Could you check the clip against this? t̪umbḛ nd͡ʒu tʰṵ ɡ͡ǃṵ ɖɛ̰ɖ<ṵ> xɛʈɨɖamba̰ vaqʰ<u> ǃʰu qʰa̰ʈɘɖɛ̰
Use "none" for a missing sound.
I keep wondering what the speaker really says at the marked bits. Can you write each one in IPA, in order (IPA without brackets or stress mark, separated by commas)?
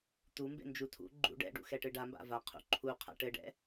ṵ, ṵ